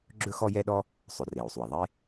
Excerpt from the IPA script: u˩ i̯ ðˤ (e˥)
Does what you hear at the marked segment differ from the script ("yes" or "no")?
no